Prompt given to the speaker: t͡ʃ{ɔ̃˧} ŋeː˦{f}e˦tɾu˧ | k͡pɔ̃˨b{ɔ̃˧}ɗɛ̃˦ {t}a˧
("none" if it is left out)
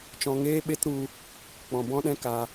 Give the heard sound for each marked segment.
ɔ̃˧, ɓ, ɔ̃˦, k

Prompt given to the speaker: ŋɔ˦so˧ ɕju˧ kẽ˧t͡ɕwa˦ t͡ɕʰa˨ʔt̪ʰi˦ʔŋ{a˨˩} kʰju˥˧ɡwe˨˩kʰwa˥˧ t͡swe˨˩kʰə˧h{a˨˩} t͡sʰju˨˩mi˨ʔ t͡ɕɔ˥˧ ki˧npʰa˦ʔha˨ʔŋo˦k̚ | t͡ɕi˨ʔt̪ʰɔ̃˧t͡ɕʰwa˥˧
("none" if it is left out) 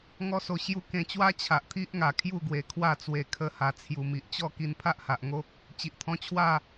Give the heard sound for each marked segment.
a˨˩, a˨˩

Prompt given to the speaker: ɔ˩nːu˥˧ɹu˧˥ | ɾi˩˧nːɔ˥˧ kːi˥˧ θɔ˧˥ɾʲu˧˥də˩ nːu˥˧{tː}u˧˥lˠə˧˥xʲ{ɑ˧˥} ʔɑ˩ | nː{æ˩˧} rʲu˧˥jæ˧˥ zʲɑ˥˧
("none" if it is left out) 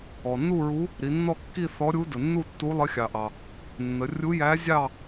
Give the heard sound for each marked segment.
tː, ɑ˩, ə˩˧

